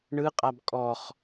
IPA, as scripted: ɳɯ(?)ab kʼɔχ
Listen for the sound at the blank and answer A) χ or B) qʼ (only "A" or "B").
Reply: B